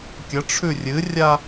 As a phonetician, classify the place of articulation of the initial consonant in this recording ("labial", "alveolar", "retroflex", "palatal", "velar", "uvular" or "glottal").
velar